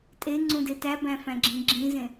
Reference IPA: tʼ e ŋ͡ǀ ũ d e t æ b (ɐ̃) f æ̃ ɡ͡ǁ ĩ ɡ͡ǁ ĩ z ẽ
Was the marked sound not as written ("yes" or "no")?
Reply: yes